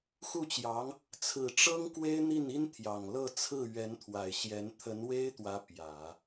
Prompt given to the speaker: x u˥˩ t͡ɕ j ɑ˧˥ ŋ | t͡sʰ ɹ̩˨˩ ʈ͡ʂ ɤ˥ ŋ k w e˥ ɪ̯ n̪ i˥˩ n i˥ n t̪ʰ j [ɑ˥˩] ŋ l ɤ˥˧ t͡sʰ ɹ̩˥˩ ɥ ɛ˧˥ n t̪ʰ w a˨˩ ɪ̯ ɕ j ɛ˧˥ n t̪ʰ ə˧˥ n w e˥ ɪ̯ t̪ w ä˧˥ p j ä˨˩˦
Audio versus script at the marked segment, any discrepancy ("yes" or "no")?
yes